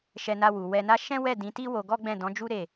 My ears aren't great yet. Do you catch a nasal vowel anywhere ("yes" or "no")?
yes